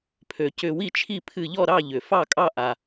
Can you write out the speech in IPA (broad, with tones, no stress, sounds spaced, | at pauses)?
pʰ ø˩ c ʏ˧˩ w i˥˩ t͡ʃʰ i˥˩ pʰ ɨ˧˩ ʎ ɔ˥˩ ɾ ɑ˥˩ ʎ ʏ˩ f ɑ˥˩ kʼ ɑ˥˩ ʔ a˩